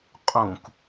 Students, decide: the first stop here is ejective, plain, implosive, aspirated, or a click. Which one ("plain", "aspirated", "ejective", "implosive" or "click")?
ejective